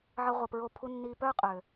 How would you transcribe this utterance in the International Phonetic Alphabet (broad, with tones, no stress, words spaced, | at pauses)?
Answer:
ʕə˧ʁʷə˨pɹo˧ pʰu˧nːiː˧pœː˦ qʼø˨